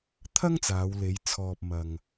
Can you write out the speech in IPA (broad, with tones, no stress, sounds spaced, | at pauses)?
t̪ʰ ɐ˥ ŋ t͡s aː˨˧ w l e˨˧ j t͡sʰ ɔː˨ p̚ m ɐ˨ ŋ